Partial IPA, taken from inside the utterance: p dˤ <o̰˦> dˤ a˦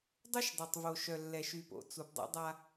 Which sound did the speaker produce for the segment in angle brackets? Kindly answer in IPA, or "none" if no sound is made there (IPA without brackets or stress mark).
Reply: o̰˦